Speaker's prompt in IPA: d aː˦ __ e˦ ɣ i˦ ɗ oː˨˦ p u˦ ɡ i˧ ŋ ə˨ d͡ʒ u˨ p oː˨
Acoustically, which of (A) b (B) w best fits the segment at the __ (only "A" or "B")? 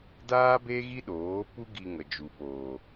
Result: A